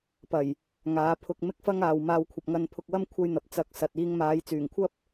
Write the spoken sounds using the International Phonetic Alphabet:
p ɐ˨˩ j | ŋ aː˨˥ pʰ ʊ˧ k̚ m ɪ˥ k̚ f ɐ˥ ŋ aː˨ w m aː˧ w kʷʰ ɐ˨ p̚ ŋ ɐ˧ n pʰ ʊ˧ k̚ w ɐ˥ m kʷʰ ɐ˥ j n̪ ɐ˨˥ p̚ t͡s ɐ˨˥ k̚ s ɐ˨ t̚ iː˧ ŋ m aː˨˧ j t͡s yː˨˩ ŋ kʷʰ ɐ˥ p̚

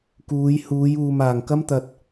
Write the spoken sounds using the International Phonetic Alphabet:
k uː˨˧ j h uː˨˧ j uː˨ m aː˨˩ ŋ k ɐ˥ m t̪ ɐ˨ t̚

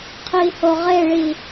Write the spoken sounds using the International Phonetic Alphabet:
qʰ i h o ʁ e ɭ i

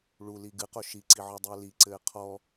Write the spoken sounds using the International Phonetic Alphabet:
ɭ u l i ɡ ɨ q o ʃ i ǀ i ʕ ɔ dˤ ɘː l i ǀ ɘː qʰ ɔ

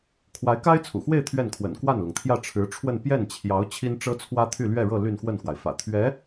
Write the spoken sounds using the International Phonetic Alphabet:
kʰ w a˧˥ ɪ̯ k a˥ ɪ̯ t͡sʰ ṵ˨˩ x w e˥˧ ɪ̯ t̪ʰ ɥ ɛ˥˩ n kʰ w ə̰˨˩ n k w a˥˩ n l ʊ˩ ŋ t̪ʰ j ä˥˩ ʈ͡ʂʰ ɻ̩˧˥ ʈ͡ʂʰ w ə˥˧ n p j ɛ˥˩ n t͡ɕʰ j ɑ˧˥ ʊ̯ t͡ɕʰ i˥ n ʈ͡ʂ ɤ˥ t͡sʰ w ä˥ t̪ʰ y˥˧ l ɥ ɛ˥˧ ɻ ɤ˥˧ l y˥˧ n x w ə˥˩ n x w a˩ ɪ̯ f ä̰˨˩ t̪ʰ ɥ ɛ˧˥

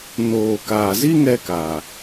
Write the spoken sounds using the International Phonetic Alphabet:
n oː˨ k aː˨ z i˦ ŋ ɛ˧ k a˨

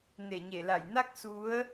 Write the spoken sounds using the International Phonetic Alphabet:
n e˧˩ ɲ e˧˩ l a˧˩ j n a˦˥ k̚ s u˨˦ ə̯

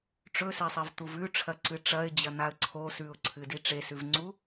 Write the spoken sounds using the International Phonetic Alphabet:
ʈ͡ʂ ɵ s e sˤ e v t̪ u v ʉ ʈ͡ʂʰ ɐ ǀ ɨ ʈ͡ʂ ɐ ɪ̯ d͡ʑ ɐ n̪ a ə̯ ǀʰ o s ʉ ʊ̯ ǀʰ ɨ d i ʈ͡ʂ e s ʉ v ŋ͡ǀ u

